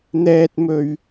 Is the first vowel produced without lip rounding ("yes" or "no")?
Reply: yes